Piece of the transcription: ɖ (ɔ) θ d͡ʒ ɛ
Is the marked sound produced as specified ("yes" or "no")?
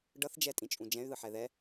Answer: no